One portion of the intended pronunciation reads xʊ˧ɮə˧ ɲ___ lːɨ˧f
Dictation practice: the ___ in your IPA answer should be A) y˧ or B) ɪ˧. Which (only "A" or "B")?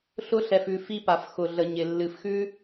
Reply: B